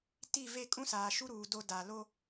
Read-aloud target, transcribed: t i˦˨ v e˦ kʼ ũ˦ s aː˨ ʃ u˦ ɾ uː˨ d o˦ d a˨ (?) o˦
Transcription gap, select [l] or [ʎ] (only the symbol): l